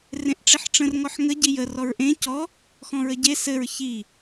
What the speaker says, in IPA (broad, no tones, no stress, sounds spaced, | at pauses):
r ẽ ʔ ʈ͡ʂ i ħ ʈ͡ʂ ə̃ r ŋ ɔ ħ ŋ ə ɟ i j ə r ɔ ɹ ʔ ẽ c ɔ | x ɔ̃ ɹ ə ɟ e s ɘ ɹ ç i